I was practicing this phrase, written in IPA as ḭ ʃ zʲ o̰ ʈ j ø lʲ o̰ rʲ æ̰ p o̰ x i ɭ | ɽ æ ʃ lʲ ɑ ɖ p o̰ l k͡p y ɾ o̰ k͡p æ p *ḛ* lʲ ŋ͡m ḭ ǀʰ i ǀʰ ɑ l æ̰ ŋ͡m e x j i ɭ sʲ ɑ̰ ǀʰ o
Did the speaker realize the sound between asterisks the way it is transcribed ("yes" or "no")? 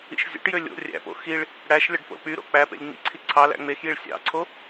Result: yes